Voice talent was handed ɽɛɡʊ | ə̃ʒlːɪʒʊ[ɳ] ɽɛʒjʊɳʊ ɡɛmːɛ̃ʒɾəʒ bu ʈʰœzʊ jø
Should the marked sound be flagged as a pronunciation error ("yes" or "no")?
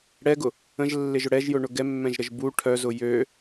yes